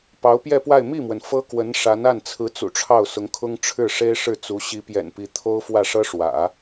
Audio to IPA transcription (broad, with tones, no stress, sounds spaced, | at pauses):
p ɑ˧˥ ʊ̯ p j ɛ˥˧ p w a˥˧ ɪ̯ m i˥˩ m w ə˩ n f ɤ˥ k w ə˧˥ n ʂ a˧˥ n a˥˩ n t͡sʰ ɹ̩˧˥ t͡s ṵ˨˩ ʈ͡ʂʰ ɑ˥˩ ʊ̯ s ʊ˧˥ ŋ kʰ ʊ˥ ŋ ʈ͡ʂʰ ɻ̩˥˩ ʂ e˥ ɪ̯ ʂ ɻ̩˥˩ t͡s u˧˥ ɕ i˧˥ p j ɛ̰˨˩ n p i˧˥ t̪ʰ o˥ ʊ̯ f w ä˥˩ ʂ ɤ˥ ʂ w ä̰˨˩˦